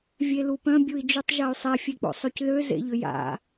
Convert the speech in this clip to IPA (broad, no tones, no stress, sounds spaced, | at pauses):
vʲ e l u p œ̃ bʲ u i̯ d͡ʒ u tˤ ʒ a y̯ sˤ ɛ fʲ e k͡p o̰ sˤ ø c ð ø z ḛ ʎ ʏ j a̰